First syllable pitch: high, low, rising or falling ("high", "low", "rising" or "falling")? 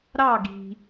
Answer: falling